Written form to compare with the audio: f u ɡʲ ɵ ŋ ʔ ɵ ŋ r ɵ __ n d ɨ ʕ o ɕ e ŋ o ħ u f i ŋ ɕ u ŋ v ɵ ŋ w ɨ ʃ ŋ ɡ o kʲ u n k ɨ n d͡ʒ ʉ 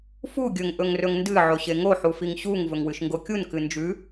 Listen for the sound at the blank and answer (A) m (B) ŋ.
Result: B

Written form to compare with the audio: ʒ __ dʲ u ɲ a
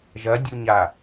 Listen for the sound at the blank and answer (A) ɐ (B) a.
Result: A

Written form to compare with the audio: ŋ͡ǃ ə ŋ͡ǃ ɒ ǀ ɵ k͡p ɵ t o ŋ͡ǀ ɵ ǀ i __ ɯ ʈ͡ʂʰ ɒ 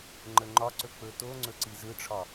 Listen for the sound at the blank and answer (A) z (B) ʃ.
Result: A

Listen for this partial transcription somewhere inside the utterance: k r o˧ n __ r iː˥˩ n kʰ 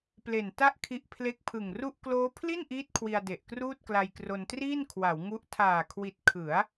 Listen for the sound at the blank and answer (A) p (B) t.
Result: B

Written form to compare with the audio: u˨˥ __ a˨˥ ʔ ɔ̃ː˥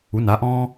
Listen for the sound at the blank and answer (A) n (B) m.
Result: A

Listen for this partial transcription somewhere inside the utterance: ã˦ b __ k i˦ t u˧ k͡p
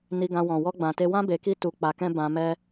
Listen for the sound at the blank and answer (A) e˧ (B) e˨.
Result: A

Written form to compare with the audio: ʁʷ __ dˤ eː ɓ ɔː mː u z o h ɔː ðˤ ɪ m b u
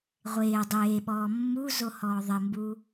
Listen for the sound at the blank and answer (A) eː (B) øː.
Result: A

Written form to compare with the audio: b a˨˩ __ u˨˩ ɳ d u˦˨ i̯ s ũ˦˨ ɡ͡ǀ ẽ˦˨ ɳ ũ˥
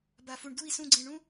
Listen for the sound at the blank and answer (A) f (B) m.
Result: A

